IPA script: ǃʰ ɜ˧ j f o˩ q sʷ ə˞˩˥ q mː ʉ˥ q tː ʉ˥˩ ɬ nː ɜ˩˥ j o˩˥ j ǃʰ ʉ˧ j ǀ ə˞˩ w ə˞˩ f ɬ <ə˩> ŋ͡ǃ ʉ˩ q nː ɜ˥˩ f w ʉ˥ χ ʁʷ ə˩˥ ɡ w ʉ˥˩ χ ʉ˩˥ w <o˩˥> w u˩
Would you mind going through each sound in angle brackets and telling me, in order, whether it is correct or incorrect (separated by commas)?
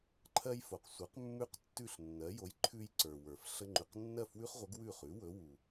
incorrect, incorrect